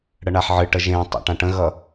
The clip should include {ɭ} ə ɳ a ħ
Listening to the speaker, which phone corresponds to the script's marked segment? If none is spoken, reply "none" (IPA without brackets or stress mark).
ɽ